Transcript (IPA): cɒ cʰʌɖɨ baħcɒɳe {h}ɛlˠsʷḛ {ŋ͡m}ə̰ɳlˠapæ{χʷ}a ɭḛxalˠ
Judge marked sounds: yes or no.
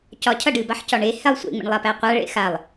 yes, yes, no

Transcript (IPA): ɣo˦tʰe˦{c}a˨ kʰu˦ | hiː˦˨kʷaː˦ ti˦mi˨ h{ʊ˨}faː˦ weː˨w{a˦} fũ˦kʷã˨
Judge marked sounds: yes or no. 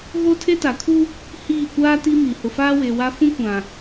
no, yes, yes

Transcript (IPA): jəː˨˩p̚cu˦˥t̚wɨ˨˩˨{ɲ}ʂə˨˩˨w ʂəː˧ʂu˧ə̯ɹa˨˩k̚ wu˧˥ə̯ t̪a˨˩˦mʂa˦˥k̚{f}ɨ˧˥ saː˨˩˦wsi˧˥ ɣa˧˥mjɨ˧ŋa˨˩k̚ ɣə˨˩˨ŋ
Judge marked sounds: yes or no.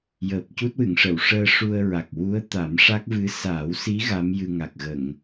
no, no

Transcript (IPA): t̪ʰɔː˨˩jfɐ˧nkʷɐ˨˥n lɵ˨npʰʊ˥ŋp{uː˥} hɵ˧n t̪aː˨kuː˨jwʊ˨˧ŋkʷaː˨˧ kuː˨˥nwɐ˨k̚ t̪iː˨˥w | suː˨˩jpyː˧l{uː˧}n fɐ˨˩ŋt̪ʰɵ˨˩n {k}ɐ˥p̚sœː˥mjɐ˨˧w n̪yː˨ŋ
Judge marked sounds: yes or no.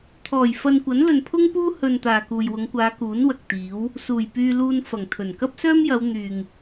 yes, yes, yes

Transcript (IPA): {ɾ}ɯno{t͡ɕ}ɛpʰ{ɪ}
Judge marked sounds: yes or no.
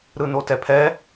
yes, no, no

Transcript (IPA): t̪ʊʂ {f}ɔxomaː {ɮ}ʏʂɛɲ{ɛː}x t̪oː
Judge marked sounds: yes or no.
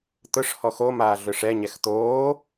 no, yes, no

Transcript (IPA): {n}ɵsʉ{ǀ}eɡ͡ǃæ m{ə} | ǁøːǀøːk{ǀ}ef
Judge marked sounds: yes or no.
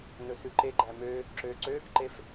yes, no, no, no

